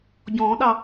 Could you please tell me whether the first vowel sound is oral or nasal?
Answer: nasal